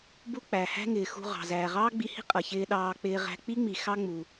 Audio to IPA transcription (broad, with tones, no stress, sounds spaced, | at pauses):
b u˥ k͡p æ˩ h æ̤˥ ŋ ɪː˩ x ṳ˧ ʁ ɑ̤˩ z æː˩ ʁ ɑː˥ ɡ͡b i˧ h i̤˥ qʼ ʌ˩ ç ɪː˧ ɗ ɑː˧ k͡p ɪː˧ ʁ æ̤˧ k͡p i˥ ŋ͡m i˩ x ɑ˥ ŋ͡m u˩